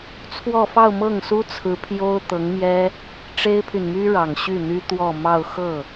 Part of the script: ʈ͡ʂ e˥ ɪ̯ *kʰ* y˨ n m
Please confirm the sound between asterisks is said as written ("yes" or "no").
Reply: no